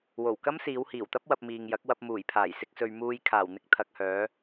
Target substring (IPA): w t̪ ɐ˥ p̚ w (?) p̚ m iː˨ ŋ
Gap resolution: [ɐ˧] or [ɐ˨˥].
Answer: ɐ˧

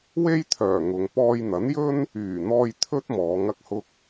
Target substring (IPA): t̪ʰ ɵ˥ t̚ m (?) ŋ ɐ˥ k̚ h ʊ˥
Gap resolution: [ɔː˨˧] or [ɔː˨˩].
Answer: ɔː˨˧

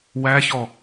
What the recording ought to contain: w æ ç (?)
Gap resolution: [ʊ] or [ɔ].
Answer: ɔ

